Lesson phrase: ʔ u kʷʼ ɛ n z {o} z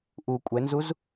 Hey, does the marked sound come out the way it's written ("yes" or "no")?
no